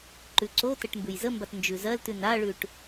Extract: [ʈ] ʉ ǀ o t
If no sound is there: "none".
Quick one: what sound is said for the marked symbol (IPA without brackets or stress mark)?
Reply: ǃ